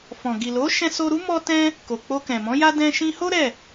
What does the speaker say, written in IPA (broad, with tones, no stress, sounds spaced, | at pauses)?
f ɔ̃˨ ɡ i˨ l o˨˦ ʃ ɛ̃˧ s o˧ ɾ u˦ m ɔ˧ t ɛ̃˧ | k o˨ k͡p o˧ k ɛ̃˨ m ɔ̃˨˦ j a˦ d ɛ̃˧ ʃ ĩ˧ h o˦ ɾ ɛ˦˨